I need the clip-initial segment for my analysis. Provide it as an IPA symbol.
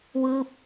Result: w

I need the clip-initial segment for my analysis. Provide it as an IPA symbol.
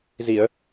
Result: z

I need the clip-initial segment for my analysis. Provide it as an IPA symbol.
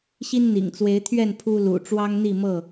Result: ɕ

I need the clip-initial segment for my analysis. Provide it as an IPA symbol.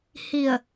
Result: h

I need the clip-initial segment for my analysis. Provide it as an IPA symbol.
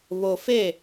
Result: β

